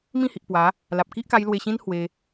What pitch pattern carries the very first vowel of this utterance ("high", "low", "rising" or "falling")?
falling